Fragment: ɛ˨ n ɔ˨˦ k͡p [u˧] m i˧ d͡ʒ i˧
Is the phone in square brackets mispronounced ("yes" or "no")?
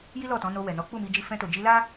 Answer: yes